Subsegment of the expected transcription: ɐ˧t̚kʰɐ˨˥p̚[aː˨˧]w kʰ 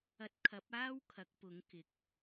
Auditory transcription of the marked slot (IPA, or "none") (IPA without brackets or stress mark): aː˥